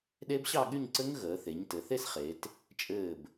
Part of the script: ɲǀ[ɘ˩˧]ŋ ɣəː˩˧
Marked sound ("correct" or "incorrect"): incorrect